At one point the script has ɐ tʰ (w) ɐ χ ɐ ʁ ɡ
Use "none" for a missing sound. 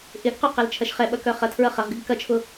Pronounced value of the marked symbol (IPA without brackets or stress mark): ɹ